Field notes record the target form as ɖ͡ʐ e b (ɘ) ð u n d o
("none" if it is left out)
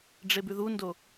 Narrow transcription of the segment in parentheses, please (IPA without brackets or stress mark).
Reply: ʉ